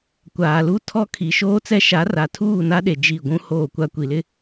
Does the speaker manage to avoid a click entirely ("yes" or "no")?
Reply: yes